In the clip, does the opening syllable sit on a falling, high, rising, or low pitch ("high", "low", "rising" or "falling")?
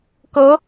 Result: rising